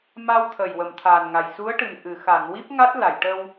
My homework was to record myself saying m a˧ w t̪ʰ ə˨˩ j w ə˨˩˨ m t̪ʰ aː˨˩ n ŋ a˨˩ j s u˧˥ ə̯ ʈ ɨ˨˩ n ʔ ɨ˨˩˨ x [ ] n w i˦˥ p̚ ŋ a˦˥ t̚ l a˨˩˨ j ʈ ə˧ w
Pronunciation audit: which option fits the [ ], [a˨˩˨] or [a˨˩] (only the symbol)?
a˨˩˨